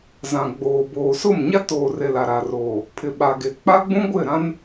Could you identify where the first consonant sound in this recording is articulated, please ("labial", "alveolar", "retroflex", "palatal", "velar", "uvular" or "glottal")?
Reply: alveolar